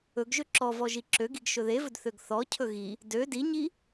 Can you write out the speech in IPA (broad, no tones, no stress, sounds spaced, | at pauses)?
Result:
ɵ ɡ ʒ ø ǁ ɔ v ɔ ʒ i ǁ ø ɡ i ɡ ʃ ɵ ð e v ɵ d θ ø ɡ θ ɔ cʰ ɵ ɣ i | d ø d i ɲ i